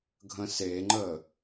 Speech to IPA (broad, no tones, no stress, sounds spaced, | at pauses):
ɡʱ ə̃ s e ŋ͡ǃ ə